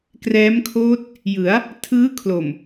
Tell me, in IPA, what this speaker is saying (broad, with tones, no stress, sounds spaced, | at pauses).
k r ɛː˦˥ m kʰ oː˦˥ t̚ | j ɯ˩˦ a̯ | tʰ ɯː˦˥ kʰ l o˨˩ m